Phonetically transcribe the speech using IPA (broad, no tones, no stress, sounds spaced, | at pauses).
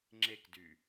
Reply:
ŋ͡ǁ e k d y